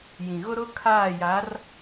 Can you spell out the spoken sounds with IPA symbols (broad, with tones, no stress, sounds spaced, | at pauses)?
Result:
j ĩ˨ ɣ ʊ˦ ɾ ʊ˦ kʰ aː˦˨ j a˨˦ r